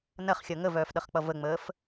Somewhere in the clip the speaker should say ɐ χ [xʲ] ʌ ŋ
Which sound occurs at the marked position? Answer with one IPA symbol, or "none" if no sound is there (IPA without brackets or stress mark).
xʲ